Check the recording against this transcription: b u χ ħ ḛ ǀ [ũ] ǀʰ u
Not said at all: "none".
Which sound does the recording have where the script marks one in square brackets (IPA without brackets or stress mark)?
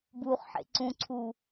ũ